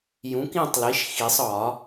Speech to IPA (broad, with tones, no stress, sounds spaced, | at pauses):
j ũ˩˥ k ĩ˥˨ tˤ l i˩˥ ʃ x i˨˩˦ sˤ ɒ˨˩˦